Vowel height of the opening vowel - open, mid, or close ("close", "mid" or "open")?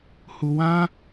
close